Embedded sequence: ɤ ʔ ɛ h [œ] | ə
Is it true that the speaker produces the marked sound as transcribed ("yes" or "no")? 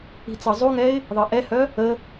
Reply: yes